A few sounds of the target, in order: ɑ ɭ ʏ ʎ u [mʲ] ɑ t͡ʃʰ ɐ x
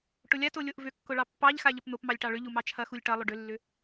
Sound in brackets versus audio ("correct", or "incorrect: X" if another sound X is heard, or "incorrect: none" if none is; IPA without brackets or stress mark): incorrect: m